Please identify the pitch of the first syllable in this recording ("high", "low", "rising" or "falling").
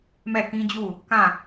falling